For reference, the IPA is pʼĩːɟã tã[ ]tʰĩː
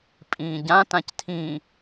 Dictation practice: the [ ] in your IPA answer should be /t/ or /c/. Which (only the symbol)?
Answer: c